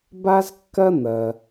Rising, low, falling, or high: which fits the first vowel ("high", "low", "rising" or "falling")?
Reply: high